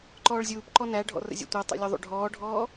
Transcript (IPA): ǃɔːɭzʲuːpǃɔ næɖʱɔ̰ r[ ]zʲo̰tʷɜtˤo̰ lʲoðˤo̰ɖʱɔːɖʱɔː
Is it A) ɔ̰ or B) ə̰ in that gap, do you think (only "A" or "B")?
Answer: B